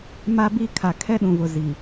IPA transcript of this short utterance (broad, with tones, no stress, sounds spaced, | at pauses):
m a˦ b i˦ kʰ a˨ kʰ ɛ˦ ɗ ũ˨ v ʊ˨ z i˨